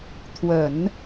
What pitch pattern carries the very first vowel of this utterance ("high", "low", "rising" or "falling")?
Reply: low